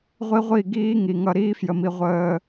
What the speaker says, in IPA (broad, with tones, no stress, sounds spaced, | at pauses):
ʁʷ i˦ ʁʷ i˦˨ ɡ iː˦ ŋ i˨ ŋ ʌ˦ ɾ iː˦ f j ə˨ m i˨ ʁʷ əː˦